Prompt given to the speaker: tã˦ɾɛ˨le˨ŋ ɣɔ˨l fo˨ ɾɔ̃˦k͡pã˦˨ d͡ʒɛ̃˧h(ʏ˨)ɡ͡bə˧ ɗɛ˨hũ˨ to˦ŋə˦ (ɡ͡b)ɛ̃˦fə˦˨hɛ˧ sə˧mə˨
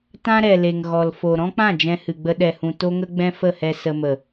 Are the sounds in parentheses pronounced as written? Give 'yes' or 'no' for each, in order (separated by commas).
no, yes